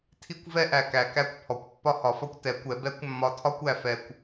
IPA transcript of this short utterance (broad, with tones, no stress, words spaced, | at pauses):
tʰi˧kʷvɛ˧ʔæ˩kæ˩ kæ˧kʷ pʰɔ˩kʷ pːɒ˧hɒ˩˧fɒ˧kʷ tɛ˩˧kʷɛ˩˧ bɛ˧˥kʷ mːɒ˧tʰɒ˥kʷæ˩˧fɛ˧kʷ